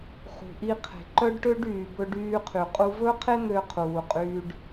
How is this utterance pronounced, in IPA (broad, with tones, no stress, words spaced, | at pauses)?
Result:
χṳ˩ʔi˧qʰe̤˩ ǃœ˥ɖʈø˥ɖyː˩ bɵ˧ɖyː˧qʰy˩ qʼu˧vɵ˥qʰe˥n̪ø˧ qʰuː˩qʼyː˧ɖ